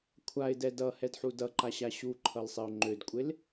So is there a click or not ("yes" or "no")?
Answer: yes